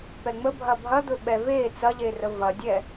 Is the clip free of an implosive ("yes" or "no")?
no